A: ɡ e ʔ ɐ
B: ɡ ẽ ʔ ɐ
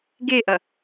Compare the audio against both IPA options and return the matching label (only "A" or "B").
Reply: A